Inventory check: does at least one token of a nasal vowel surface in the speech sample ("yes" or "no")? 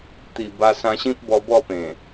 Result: yes